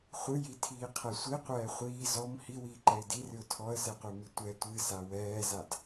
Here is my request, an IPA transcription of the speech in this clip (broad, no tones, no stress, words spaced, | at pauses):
χʷɨjitʰiːqʰɛ sʷiqʷɛː χʷiː zɔm hiwiːǃɛɪ̯ dirɨʊ̯ tʰɔə̯sɛqʷemi tʷɛ tʷɨsa wɛːzad